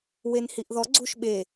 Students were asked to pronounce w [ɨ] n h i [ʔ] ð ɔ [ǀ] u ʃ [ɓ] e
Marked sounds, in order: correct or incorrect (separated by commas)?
incorrect, correct, incorrect, correct